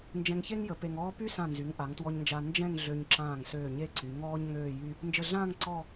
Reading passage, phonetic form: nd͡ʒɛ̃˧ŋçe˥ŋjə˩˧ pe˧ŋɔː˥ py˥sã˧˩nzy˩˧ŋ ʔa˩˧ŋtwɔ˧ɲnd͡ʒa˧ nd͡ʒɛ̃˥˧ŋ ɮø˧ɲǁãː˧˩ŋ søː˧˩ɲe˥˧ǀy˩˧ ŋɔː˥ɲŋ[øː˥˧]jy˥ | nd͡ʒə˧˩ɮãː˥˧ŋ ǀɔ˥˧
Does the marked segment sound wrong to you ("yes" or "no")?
no